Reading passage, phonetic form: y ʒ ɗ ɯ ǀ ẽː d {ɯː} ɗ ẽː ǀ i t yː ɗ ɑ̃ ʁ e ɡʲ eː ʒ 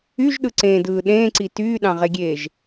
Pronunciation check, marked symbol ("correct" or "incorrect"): correct